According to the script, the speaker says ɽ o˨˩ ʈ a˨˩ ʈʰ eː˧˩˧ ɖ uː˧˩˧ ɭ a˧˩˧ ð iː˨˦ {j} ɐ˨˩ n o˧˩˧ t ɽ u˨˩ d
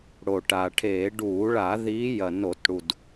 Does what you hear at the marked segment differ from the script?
no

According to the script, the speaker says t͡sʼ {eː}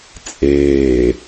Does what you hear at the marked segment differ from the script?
no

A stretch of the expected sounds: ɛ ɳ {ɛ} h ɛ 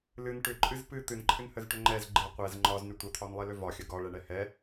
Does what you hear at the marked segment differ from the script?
no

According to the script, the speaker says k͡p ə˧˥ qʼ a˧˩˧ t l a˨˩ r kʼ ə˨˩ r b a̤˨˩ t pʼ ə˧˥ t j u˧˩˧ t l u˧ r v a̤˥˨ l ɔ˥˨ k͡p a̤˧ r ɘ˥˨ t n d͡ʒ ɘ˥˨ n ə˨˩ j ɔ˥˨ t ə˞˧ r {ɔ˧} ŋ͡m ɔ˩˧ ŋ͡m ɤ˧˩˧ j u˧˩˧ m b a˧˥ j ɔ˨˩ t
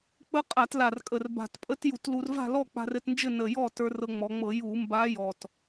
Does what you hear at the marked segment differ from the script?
yes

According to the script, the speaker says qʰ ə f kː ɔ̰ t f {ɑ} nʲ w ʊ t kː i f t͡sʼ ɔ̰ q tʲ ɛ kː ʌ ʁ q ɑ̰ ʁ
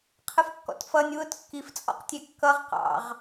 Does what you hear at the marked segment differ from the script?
yes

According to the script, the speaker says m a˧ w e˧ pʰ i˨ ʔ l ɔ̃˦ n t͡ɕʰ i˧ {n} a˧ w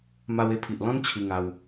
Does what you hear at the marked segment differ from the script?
yes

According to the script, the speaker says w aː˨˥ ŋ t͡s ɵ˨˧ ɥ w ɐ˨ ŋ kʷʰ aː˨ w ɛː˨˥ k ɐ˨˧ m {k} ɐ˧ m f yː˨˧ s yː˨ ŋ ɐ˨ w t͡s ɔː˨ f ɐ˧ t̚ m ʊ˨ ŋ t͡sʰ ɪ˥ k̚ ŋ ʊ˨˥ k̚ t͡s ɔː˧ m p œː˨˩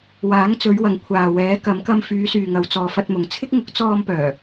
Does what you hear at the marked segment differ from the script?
no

